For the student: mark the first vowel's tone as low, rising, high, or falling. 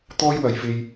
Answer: high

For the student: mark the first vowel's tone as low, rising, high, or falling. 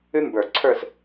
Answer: high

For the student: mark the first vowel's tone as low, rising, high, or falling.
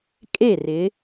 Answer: falling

